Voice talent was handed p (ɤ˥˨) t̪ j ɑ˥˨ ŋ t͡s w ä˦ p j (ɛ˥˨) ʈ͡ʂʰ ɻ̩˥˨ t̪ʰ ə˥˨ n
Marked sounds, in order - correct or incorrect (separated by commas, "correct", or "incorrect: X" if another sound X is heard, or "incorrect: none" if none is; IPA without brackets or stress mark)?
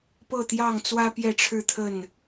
correct, correct